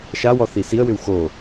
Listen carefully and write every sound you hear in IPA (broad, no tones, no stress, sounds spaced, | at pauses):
ʃ a w ɔ θ i s i ə̯ w ʏ w x o